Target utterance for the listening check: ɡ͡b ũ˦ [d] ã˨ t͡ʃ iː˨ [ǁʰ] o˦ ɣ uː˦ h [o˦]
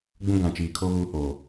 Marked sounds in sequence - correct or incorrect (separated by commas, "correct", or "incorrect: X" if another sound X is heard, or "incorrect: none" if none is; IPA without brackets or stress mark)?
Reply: incorrect: ɡ, incorrect: kʰ, incorrect: o˨